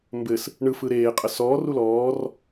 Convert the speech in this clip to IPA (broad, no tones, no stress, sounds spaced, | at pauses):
m b ɘ s | ɳ ɯ f ɯ ɾ eː qʼ ə s ɔː r u l ɔː r